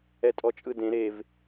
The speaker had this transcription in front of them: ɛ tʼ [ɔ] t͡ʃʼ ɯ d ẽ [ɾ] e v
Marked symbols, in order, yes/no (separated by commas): yes, yes